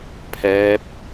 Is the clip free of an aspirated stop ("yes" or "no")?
no